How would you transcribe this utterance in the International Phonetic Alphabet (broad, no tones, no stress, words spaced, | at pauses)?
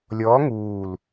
lʲɔ ŋuːl